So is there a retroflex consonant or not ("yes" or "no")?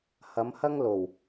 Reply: no